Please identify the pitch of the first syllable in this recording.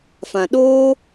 low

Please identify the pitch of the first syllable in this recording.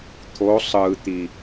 rising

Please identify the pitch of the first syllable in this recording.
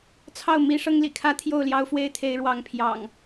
falling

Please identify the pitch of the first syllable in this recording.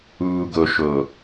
low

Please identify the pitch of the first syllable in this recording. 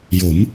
rising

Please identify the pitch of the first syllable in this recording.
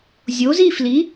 rising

